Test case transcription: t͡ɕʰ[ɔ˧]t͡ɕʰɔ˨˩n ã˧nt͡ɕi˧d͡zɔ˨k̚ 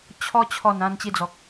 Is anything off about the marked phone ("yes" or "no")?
no